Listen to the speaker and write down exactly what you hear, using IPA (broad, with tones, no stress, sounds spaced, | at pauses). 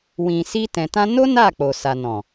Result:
w ĩ˨ s i˧ t ɛ̃˨ t ã˧ n o˦ n a˦˨ k͡p o˨ s a˨ n ɔ̃˨